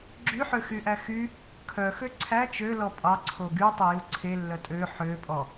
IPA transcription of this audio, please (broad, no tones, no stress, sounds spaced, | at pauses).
ɡ͡ǁ y ħ ø x y ʔ æ x y | kʰ œ x ø ǀʰ æ t͡ʃ ø l ɔ pʼ ɑ ǀʰ o ɡ y tˤ e j u ǀʰ e lː œ tʼ ø ħ ø pʼ ɔ